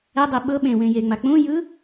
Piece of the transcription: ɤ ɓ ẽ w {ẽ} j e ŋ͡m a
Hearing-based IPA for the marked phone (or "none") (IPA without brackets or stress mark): ẽ